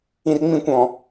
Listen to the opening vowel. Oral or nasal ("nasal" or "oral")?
nasal